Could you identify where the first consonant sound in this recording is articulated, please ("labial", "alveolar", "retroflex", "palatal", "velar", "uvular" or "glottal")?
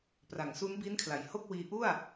labial